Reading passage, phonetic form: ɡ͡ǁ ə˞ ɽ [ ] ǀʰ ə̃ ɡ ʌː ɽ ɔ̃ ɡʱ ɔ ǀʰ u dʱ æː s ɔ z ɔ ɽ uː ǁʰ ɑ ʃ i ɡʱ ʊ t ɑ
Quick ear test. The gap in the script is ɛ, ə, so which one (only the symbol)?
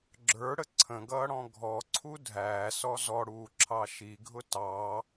ə